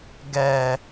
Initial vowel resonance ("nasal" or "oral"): oral